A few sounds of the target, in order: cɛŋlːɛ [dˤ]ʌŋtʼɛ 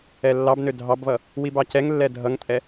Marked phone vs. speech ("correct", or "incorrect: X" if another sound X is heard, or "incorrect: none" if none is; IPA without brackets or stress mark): incorrect: dʱ